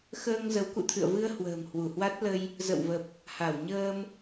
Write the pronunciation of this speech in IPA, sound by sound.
xəː˧ŋ zə˨˦wkṵ˧˨t̪ʰɨ̰˧˨ə̯vɨ˧ə̯ hwə̤ː˨˩mhwu˧˩hwa˦˥t̚lə˧j | zə̰˧˨wvə˨˩p̚ | ha˧˩wɲəː˧m

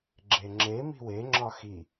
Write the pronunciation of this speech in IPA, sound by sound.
ɡ͡ǁeŋ͡ǁe mi̤we ŋ͡ǁɒxi

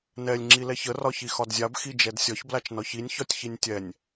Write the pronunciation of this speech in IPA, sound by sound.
nɛlʲ ŋ͡ǁilɛçə rɒçixɒdzʲab xid͡ʒɛdsʲɒç blat͡ʃnɒçinʲ çɒtʲçinʲtʲɛnʲ

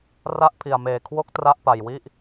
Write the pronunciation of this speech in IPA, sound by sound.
ra˥˩ʔpʰi˧a̯meː˧ kʰwo˥˩k̚tra˥˩ʔpa˧jwi˥˩ʔ

